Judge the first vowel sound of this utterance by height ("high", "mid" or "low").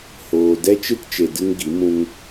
mid